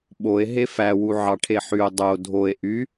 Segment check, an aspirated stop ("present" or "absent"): present